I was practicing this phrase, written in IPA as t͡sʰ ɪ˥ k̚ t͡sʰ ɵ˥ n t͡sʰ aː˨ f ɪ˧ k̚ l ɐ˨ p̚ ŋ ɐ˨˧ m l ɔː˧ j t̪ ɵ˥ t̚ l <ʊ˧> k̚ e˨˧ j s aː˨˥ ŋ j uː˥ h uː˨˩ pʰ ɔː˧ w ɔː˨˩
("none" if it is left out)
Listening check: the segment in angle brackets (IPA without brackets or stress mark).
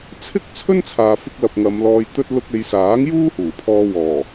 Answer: ʊ˧